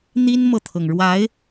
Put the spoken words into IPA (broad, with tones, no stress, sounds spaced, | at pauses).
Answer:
n̪ i˥ n m ɤ˨ t̪ʰ ɤ˩ ŋ ɻ w a˧˥ ɪ̯